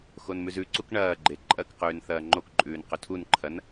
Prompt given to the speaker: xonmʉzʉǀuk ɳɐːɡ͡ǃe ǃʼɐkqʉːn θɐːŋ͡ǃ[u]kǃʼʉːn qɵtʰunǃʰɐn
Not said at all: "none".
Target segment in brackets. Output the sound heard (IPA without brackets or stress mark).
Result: o